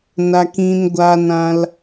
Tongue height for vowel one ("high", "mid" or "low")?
low